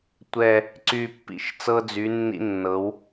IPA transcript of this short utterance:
tʷ ɛ˨˩ | ǀ y˨˩ pː ḭ˩˧ ʃ t͡s ɤ˧ d͡z y˩˧ nː ḭ˧ nː ɤ˩˧ w

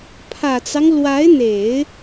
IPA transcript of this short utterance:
pʰ ä˨˩ t͡s ɑ˦ ŋ l w a˧˥ ɪ̯ n̪ e˨˩˦ ɪ̯

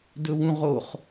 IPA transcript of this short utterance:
d ɵ w ũ ʁ o χ

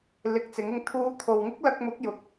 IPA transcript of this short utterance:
l ɪ˨˥ k̚ t͡s ɪ˨˥ ŋ ɪ˧ ŋ t̪ʰ uː˨˧ t̪ʰ o˨ w ŋ ɪ˥ k̚ l ɐ˧ k̚ m ʊ˨˥ k̚ j ʊ˨ k̚

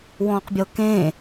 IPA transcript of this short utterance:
w ɔ̃ː q bʲ ɤ k ẽ

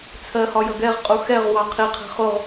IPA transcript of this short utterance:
t͡sʰ ɜ h ɒ j ʌ ɡ ɛ ʁ qʼ u x ɛ ʁ w ɑ qʰ i qʰ ɛ̤ χ ʊ ʁ

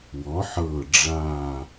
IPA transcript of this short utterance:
w ɔ˩˧ ħ ɤː˨˩ ɖ͡ʐ aː˨˩

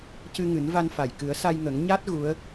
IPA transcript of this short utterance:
c ɨ˧ ŋ ɨ˨˩˦ n v a˧ n f a˨˩ j k ɨ˨˩˦ ə̯ s a˧ j ŋ ə˨˩˦ ŋ ɲ a˦˥ t̚ ɣ u˧˥ ə̯

